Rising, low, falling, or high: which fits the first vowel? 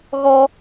high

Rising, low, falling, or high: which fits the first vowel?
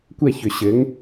falling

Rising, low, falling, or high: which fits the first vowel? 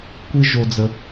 high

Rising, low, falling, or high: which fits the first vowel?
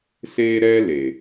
high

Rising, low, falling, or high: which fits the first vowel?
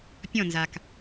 falling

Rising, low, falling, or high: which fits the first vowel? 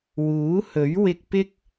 rising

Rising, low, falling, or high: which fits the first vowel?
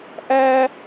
high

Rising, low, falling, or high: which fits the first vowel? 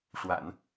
low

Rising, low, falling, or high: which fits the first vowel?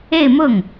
falling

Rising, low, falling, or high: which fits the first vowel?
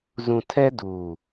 low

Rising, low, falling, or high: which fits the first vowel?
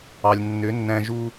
low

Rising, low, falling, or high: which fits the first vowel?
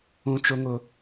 high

